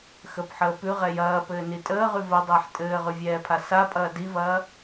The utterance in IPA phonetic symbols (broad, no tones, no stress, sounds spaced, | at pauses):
x ə p ħ əː p ʉ ʁ ɛ j ɐː p ɘː n i tʼ əː ʁ ʉ v ə dˤ əː ħ tʼ ɘː ʁ ʉ vʲ ɛː pʰ a s a pʼ ɐː d i v ɐː